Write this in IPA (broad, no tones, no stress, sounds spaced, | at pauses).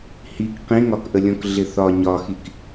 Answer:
h i k q ĩ ŋ ɒ k ʔ ə lʲ ɔ̃ k ɮ ɪ θ ɒ ɲ ɒ x i k